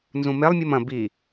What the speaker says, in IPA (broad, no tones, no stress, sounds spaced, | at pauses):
n z ũ m e lˠ mʲ ɨ m ɐ̃ b i